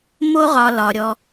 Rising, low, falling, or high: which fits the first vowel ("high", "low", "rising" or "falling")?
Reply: high